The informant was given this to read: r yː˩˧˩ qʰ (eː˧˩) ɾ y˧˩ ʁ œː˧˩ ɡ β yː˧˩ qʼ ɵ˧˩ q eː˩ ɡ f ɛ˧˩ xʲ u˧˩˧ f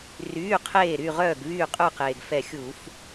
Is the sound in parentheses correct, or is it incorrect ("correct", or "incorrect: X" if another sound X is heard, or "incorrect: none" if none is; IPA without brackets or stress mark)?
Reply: correct